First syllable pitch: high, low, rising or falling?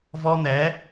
high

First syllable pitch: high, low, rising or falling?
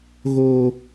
high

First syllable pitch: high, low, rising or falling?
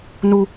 low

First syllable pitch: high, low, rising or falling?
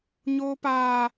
high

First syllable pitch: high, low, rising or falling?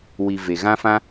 low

